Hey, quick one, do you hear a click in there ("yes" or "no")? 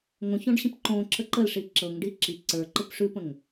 yes